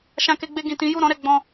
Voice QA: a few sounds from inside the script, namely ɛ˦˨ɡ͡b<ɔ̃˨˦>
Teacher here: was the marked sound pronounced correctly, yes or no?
no